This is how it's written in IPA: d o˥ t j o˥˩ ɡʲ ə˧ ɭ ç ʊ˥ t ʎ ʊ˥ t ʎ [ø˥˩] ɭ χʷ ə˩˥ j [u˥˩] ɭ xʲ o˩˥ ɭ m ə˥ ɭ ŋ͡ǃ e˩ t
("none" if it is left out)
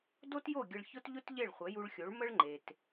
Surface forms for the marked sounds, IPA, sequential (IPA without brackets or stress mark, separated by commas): e˥˩, u˧